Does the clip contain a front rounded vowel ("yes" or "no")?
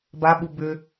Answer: yes